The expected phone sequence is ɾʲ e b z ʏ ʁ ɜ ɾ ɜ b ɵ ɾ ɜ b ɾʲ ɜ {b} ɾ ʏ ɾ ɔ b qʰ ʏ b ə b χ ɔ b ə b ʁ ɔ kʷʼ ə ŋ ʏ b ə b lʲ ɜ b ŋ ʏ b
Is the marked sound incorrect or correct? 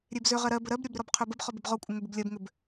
correct